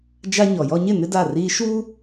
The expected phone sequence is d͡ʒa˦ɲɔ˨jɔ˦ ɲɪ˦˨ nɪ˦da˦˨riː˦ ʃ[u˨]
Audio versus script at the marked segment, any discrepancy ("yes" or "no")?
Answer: yes